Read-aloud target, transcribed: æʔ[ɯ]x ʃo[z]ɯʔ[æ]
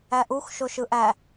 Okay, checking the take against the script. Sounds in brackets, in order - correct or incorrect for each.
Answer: incorrect: u, incorrect: ʃ, correct

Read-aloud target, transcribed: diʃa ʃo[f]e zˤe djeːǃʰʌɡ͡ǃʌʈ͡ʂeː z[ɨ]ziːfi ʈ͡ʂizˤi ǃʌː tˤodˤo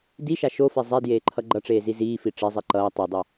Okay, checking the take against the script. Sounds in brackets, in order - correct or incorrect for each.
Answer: correct, incorrect: i

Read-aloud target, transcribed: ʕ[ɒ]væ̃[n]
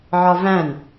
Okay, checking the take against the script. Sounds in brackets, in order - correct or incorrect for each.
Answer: correct, correct

